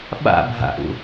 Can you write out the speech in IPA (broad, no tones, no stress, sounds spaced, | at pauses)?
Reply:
ɓ a̰ bʱ a̰ ʔ ṵ